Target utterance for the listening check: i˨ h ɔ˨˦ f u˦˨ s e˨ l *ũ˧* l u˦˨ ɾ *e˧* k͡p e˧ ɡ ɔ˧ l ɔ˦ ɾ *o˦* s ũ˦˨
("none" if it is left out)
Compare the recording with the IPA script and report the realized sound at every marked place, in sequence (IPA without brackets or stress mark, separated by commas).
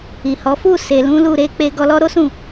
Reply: ũ˨˦, e˧, o˦